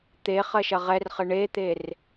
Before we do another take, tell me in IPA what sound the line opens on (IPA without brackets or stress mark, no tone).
t̪